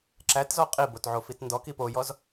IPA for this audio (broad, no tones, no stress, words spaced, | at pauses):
ǁætzɔ qʼibotʕofit ndɔki pojɔz